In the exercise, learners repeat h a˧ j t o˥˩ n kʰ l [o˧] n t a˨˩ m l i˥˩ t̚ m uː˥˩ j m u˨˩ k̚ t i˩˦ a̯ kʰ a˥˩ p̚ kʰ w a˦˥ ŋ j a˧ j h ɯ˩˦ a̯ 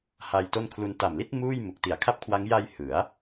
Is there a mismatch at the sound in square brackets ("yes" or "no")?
yes